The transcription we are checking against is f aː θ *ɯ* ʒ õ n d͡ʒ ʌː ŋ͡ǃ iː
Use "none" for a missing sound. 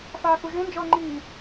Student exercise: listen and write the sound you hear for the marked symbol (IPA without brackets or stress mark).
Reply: u